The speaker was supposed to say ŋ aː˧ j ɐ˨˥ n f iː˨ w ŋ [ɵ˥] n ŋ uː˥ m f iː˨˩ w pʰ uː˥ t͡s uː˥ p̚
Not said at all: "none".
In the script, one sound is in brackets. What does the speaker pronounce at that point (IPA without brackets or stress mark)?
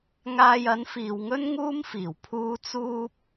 ɵ˥